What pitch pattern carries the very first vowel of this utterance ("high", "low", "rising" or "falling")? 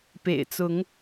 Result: low